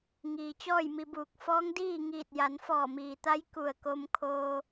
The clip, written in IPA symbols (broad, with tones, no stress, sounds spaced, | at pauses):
ŋ iː˩ t͡ɕ ɔː˥˨ j m i˧ b uː˧˩ k̚ f ɔː˧˥ ŋ d iː˥˨ ŋ iː˧˩ t̚ j a˩˧ n f ɔː˧˩ m iː˩ t̪ a˧˥ j k u˧˩ ə̯ k o˧ m kʰ oː˧